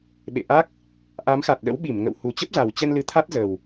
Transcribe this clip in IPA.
ɓ ḛ˧˨ ʔ a˦˥ k̚ | ʔ a˨˦ m x a˨˩ t̚ ɗ ə̰˧˥ w ɓ i˧˩ m ŋ ə̰˧˨ w h u˨˩ t͡ɕ ə˦˥ p̚ z a˨˩ w t͡ɕ ɛ˧ n l ɨ˨˦ t̪ʰ a˦˥ t̚ z ə˨˩ w

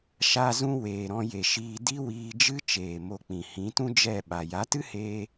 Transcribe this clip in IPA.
ʃ a˧ z ũ˧ w eː˨ ɾ ɔ̃˧ j e˨ ʃ iː˧ d i˦ w iː˧ d͡ʒ ɨ˦ t͡ʃ eː˨ m o˧ k͡p ĩ˨ h ĩ˨˦ t ũ˦ d͡ʒ ɛ˦˨ ɓ a˨ j a˨˦ t ɨ˦ h eː˧

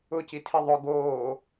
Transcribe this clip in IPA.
ʊ c i tʰ i ðˤ ʊ ɡ oː

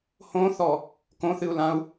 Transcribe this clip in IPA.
h õ θ ɔ | k õ θ ɨ u̯ l ã u̯

